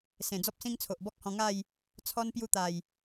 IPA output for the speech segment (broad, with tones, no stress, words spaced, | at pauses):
sẽ˨˩d͡zɔ˦p̚sĩ˦ŋt͡sʰo˨ʔ bɔ˦k̚hɔ̃˧ ŋa˥˧j | t͡sʰɔ˧n pju˧t̪a˨˩j